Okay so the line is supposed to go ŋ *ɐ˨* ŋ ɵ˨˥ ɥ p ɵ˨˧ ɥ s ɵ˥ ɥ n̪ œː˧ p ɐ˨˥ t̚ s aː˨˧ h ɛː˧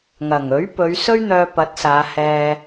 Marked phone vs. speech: incorrect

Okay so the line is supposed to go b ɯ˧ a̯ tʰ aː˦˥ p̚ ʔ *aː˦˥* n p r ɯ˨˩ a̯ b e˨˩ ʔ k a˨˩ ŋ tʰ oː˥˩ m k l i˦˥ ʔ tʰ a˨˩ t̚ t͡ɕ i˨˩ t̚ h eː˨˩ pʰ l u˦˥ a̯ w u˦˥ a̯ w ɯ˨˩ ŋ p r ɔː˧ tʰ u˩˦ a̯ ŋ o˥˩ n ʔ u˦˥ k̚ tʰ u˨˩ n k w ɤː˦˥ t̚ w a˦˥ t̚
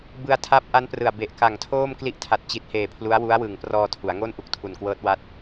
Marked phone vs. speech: incorrect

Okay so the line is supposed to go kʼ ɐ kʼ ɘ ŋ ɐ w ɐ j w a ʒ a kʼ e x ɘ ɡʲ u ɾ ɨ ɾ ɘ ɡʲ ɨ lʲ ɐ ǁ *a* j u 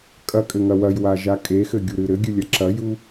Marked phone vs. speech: incorrect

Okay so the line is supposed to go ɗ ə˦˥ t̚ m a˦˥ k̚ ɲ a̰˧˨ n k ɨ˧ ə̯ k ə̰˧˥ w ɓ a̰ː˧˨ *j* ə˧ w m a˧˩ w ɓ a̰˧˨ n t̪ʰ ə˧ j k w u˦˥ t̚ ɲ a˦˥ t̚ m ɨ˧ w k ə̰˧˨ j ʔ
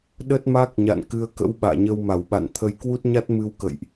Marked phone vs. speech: incorrect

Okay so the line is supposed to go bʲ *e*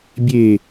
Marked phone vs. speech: correct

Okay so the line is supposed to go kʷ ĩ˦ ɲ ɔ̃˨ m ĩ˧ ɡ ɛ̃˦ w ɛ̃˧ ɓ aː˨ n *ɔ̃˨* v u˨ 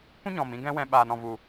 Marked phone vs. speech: correct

